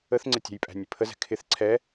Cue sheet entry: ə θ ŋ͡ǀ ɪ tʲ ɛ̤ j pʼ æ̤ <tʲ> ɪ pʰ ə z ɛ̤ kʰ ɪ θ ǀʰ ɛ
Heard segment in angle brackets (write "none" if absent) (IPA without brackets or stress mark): nʲ